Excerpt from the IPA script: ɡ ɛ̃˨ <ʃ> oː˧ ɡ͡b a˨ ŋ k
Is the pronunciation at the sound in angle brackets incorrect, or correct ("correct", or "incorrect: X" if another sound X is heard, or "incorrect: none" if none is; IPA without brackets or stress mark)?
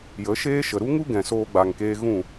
incorrect: s